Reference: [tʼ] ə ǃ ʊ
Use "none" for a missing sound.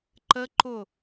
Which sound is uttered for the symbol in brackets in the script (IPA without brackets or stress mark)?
ǃ